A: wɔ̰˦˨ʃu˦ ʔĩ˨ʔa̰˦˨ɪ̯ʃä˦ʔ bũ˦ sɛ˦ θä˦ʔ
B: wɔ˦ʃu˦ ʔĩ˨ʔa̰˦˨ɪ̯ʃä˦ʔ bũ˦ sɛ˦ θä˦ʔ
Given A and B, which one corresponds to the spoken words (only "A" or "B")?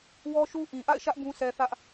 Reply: B